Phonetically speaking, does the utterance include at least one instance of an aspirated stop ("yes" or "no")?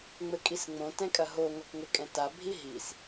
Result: no